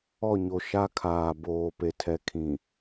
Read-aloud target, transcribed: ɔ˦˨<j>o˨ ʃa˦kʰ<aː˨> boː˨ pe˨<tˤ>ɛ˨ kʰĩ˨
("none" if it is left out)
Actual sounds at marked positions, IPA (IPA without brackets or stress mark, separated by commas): ɲ, aː˨, tʰ